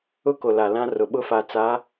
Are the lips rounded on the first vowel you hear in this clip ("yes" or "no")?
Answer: yes